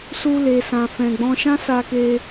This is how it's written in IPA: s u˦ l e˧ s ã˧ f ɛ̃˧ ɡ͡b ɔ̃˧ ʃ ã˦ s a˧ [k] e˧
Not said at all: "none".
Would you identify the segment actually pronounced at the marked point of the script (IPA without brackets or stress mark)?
k